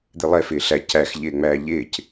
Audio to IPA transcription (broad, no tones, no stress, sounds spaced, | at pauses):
d̪ ɪ lˠ ɛ f ɪː ɬ æ c æ x ʎ ɪː ŋ͡m æː ʎ ɪː c